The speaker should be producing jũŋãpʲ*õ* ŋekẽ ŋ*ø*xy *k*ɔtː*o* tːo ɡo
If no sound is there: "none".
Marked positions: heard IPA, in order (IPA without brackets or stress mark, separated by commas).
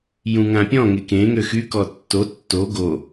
ɔ̃, ø, k, o